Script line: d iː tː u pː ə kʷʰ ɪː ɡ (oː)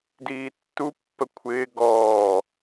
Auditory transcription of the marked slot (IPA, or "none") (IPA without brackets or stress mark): ɔː